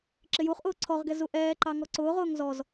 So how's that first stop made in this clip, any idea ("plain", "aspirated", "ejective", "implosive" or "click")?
click